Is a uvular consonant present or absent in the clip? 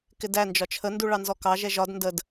absent